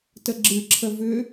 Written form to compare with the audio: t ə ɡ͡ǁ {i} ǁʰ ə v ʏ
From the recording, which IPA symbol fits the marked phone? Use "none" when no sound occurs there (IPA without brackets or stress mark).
ɨ